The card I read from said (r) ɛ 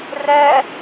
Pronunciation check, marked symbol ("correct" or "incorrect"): correct